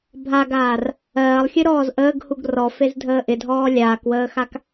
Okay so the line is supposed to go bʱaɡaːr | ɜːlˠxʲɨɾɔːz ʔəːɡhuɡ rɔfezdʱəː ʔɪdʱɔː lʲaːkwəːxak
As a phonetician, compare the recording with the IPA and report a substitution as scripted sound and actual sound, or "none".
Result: none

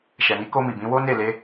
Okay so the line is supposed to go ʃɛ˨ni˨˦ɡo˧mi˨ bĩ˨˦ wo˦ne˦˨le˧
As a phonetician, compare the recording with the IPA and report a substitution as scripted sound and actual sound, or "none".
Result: ɡ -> k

